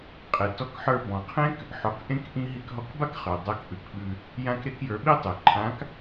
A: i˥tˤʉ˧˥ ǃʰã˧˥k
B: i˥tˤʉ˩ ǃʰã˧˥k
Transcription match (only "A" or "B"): B